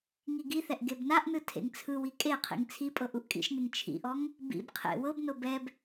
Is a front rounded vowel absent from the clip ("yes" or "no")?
yes